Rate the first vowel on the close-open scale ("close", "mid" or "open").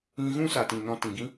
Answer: close